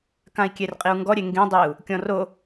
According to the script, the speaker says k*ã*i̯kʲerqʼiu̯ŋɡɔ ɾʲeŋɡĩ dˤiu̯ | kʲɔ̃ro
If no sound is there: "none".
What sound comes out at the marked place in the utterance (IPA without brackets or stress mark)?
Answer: ã